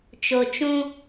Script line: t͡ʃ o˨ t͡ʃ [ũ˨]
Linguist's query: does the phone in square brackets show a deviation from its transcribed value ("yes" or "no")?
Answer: yes